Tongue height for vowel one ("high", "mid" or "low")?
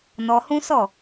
mid